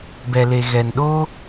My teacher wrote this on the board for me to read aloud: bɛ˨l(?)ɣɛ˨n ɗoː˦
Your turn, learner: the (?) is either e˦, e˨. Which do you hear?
e˨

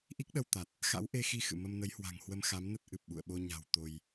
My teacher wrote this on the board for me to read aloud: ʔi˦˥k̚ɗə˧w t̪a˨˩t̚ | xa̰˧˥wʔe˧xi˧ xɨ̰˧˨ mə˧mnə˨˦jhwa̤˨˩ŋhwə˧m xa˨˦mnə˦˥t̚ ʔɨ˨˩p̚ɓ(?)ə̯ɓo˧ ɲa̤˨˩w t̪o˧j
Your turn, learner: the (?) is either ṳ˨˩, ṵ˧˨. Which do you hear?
ṵ˧˨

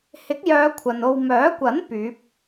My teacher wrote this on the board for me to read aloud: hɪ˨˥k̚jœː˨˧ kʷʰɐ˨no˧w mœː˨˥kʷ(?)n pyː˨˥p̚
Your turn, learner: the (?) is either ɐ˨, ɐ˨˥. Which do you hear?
ɐ˨˥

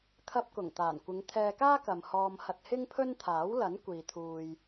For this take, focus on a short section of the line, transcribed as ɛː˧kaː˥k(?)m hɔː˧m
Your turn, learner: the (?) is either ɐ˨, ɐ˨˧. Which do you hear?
ɐ˨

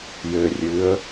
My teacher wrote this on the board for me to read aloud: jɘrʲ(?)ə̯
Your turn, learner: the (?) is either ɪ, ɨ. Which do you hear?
ɨ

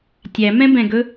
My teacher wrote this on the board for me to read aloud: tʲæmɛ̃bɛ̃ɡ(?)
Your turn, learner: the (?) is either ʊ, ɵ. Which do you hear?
ɵ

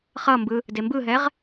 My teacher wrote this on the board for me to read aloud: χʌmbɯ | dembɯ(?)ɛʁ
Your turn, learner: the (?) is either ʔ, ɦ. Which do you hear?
ɦ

